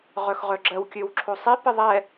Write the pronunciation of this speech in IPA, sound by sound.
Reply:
ʁ œ x ʁ œ ɡ͡ǁ ɜ w kʲ ø w ǁʰ o sˤ i p ɪ ðˤ ɛ

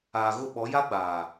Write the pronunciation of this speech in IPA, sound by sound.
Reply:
aː˨ ɣ ʊ˦˨ ɓ ɔ˨˦ j a˦ ɡ͡b aː˨

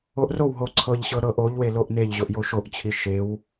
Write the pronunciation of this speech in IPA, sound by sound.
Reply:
o ʔ r o w ɦ o ǀʰ ɤ ʎ ɕ ɤ ɾ ɤ ʔ o ʎ w e l o ʔ n e ʎ ʑ o ʔ j o ʃ o ʔ t͡ɕʰ i ʃ e w

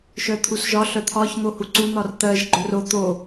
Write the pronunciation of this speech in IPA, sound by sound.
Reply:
ʃ œ t̪ʰ u s ʒ ɒ ɬ œ t̪ʰ ɒ ç n̪ o h u ǀ u n̪ ɒ r t̪ ɜ ʒ ɡ͡ǃ œ r o t̪ o

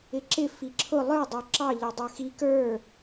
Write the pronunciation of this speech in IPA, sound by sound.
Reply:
ɪ ǁ ɪ f i ǁʰ ʊ lˠ ə˞ dˤ ə˞ ǁ ɑ ʎ ɑ dˤ ə˞ x i k ə˞

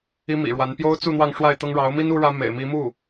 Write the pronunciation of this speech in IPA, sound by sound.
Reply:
i˥ m ḭ˨˩ ɻ w a˧˥ n p j o˥ ʊ̯ t͡s u˥˧ n̪ w ɑ˥˧ ŋ ʂ w a˥˩ ɪ̯ t̪ ɤ˥ ŋ ɻ ɑ˧˥ ʊ̯ m i˥ n u˥ ɻ ä˥ m ḛ˨˩ ɪ̯ m i˧˥ m u˥˩

